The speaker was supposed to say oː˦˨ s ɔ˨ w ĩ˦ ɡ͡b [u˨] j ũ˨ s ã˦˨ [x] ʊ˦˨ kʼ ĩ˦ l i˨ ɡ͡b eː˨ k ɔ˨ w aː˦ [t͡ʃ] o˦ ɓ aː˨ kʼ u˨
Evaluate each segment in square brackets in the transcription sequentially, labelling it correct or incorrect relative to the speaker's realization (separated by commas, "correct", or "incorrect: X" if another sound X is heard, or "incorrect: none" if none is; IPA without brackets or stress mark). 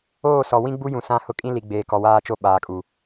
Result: incorrect: u˦, incorrect: h, correct